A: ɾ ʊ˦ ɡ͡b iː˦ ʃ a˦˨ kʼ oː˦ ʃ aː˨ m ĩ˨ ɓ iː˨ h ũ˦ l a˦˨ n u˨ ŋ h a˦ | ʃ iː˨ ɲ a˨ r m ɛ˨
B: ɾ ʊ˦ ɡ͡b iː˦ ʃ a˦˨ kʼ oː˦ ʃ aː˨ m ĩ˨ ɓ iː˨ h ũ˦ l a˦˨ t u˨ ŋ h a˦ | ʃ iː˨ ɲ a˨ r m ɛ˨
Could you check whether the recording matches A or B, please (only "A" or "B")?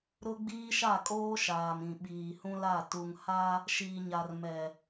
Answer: B